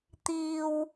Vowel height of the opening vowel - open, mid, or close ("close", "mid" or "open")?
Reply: close